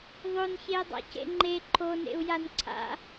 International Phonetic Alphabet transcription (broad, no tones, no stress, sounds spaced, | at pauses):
ðˤ o n ç e i̯ dˤ a̰ c ḛ ŋ͡ǃ e ǃʰ o n ḛ u̯ j a n ǀʰ a̰